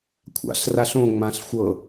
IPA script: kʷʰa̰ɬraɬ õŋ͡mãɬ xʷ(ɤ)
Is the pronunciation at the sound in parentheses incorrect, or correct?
correct